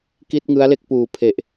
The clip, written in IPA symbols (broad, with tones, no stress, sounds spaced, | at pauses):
k i˥˩ t̚ ŋ ɯ˦˥ a̯ l e˥˩ k̚ p uː˨˩ pʰ e˨˩ ʔ